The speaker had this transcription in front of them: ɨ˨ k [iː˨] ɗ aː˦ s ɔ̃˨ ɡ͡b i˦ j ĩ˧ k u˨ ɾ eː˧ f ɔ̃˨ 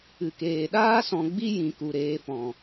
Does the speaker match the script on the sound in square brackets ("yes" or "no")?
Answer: no